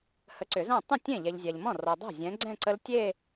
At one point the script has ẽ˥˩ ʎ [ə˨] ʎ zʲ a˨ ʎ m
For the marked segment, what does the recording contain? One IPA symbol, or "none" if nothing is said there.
ɛ˨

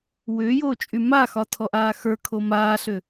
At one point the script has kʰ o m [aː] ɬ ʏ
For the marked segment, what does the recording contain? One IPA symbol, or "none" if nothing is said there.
aː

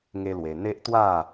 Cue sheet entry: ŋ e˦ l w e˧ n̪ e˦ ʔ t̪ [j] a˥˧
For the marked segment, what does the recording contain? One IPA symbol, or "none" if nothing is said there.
w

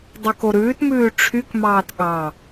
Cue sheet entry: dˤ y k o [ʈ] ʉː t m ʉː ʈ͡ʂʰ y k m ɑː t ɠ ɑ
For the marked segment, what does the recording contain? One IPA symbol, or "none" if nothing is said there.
ɾ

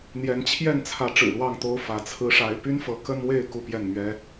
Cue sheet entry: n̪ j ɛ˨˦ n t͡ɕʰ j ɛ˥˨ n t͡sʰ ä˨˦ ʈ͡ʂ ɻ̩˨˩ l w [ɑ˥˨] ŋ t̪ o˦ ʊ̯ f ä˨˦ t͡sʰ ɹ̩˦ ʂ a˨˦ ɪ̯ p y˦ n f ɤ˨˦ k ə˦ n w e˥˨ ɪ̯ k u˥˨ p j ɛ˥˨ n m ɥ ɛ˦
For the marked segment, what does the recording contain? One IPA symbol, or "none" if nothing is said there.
ɑ˥˨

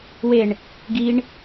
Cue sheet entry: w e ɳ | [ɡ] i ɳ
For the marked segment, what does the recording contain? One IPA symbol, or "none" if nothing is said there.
ɡ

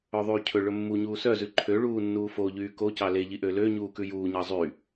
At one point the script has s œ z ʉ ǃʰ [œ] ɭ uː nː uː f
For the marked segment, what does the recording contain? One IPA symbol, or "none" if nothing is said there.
ø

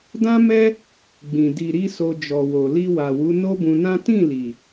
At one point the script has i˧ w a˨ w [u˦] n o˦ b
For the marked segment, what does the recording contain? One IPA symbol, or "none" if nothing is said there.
u˨˦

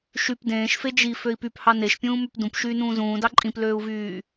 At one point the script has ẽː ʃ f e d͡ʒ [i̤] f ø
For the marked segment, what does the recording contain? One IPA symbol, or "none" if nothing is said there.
i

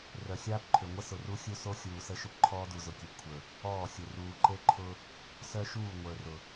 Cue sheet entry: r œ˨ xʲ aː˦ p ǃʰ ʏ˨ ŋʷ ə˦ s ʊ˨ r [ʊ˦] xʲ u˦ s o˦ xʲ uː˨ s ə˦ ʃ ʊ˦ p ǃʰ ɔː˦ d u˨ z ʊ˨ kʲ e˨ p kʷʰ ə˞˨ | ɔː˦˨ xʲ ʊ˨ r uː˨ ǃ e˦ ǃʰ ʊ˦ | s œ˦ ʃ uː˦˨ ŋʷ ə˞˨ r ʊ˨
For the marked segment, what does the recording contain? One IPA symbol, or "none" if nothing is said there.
u˦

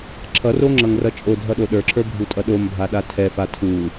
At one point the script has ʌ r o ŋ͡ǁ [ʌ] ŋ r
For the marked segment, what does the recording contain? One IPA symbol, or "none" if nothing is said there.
ʌ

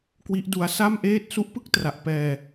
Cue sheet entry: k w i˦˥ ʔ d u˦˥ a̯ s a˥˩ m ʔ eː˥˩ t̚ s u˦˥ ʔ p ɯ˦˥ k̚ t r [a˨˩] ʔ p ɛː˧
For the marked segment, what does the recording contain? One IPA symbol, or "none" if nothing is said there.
a˨˩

